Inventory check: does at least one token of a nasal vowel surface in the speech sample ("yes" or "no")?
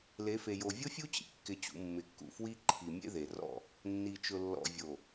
no